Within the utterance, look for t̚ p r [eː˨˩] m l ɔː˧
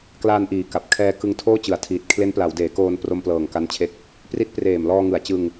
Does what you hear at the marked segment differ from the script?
no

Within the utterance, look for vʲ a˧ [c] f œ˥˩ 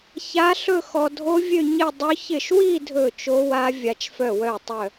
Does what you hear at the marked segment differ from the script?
yes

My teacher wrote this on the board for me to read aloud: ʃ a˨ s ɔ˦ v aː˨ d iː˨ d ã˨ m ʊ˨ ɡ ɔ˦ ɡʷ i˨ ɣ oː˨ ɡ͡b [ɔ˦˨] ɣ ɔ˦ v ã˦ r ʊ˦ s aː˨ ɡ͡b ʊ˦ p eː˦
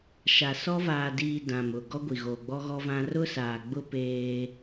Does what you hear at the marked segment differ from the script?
yes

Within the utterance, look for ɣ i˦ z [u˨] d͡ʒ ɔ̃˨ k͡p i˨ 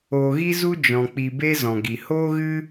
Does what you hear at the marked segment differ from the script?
yes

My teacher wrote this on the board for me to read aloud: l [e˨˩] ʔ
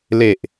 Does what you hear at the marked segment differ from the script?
no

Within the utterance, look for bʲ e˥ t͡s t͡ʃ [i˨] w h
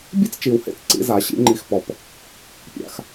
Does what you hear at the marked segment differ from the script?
no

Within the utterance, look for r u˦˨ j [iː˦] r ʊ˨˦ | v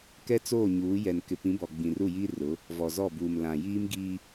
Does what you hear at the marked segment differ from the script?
no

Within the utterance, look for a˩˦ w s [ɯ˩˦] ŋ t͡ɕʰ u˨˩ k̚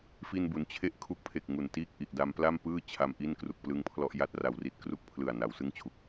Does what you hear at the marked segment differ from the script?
yes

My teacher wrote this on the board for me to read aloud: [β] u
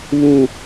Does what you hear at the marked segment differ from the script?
no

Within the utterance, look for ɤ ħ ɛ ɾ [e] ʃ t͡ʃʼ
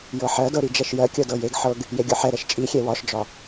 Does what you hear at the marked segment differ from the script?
yes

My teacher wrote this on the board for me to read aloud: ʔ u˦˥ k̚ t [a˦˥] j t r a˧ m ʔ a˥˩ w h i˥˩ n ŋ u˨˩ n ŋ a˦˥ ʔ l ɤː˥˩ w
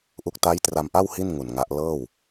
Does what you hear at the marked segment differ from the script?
no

